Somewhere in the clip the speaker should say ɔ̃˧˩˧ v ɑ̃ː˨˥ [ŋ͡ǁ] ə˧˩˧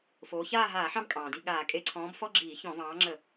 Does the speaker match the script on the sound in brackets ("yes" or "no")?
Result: yes